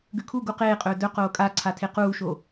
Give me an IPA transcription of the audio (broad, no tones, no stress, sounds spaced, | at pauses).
ɡ ʉ kʰ u ɡ u q eː qʼ ɵː d ɵ q oː kʼ a ǀʰ a tʰ e q uː ʃ o